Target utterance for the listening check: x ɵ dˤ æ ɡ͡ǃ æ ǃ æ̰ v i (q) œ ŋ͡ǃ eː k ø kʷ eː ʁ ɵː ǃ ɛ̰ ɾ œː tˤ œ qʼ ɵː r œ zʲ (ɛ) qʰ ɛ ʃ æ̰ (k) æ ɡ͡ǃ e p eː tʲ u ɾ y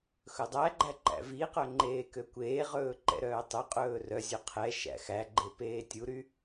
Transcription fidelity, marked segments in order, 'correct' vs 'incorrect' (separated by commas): correct, incorrect, incorrect